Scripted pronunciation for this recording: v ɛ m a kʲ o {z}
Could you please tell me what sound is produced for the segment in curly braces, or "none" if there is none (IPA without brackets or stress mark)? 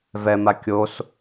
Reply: s